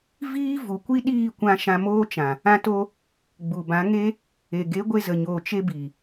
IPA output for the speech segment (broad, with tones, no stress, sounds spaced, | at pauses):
v iː˦ v u˨ kʷ i˦ ɗ iː˦˨ kʷ ã˧ ʃ ã˧ m oː˦ t͡ʃ ã˨ | ã˦ t o˦ | ɡ͡b u˨ b ã˨˦ ŋ e˦ | e˨ ɡ e˨˦ ɡʷ e˧ z ə˨ ɲ oː˨ t͡ʃ e˧ b i˨